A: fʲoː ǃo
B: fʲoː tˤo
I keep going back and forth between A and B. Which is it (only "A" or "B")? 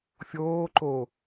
A